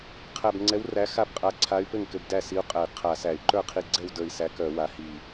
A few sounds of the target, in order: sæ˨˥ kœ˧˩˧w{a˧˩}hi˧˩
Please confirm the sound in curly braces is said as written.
no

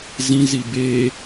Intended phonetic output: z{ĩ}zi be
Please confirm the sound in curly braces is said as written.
yes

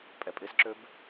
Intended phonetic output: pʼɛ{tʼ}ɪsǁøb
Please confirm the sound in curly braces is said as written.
no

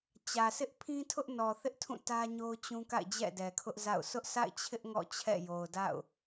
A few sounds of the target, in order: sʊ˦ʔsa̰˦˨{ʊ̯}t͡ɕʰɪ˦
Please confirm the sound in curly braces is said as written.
no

